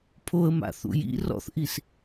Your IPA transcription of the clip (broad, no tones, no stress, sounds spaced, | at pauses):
pʰ o ə̯ m a̰ θ ṵ j ḭ r ɔ̰ θ ʔ i s